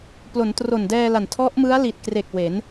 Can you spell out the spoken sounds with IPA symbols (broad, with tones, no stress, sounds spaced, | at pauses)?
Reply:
p l o˩˦ n t r o˨˩ n d ɛː˧ l a˨˩ n tʰ ɔ˦˥ ʔ m ɯ˦˥ a̯ l i˨˩ t̚ k r e˨˩ k̚ w e˩˦ n